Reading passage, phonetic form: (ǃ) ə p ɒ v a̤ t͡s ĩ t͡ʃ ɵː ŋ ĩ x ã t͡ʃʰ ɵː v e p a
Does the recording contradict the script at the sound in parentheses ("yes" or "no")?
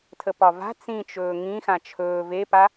yes